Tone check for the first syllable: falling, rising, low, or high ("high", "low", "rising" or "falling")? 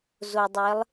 low